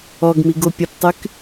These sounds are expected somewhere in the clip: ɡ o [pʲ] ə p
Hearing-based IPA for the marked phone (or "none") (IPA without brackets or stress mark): pʲ